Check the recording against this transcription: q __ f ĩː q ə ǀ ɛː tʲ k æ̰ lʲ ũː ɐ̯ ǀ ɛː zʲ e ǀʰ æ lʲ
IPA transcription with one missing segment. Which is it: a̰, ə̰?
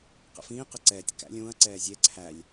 ə̰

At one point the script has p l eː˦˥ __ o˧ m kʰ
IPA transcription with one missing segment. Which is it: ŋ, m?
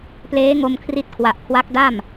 ŋ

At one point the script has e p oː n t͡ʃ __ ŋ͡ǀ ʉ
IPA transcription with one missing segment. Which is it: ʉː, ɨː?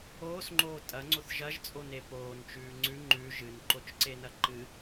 ʉː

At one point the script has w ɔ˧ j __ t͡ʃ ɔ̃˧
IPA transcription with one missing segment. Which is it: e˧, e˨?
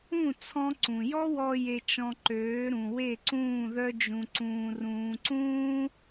e˧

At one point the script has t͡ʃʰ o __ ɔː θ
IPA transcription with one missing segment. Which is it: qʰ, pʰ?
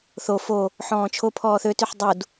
pʰ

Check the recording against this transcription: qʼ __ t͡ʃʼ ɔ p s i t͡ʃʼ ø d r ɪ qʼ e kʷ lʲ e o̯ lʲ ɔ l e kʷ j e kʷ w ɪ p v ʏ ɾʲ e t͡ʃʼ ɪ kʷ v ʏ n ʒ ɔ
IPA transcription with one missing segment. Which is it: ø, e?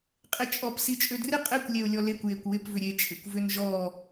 e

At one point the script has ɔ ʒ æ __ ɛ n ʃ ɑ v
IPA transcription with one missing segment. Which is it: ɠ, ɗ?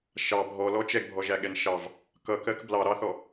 ɠ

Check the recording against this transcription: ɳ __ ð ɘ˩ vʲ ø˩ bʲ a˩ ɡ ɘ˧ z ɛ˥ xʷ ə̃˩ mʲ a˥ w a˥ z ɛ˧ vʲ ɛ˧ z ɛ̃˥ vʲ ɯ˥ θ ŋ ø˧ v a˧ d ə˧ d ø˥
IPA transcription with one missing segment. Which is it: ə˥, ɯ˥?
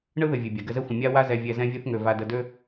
ɯ˥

